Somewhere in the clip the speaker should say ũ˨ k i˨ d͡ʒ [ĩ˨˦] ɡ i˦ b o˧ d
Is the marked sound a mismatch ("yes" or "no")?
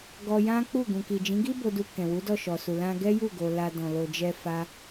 no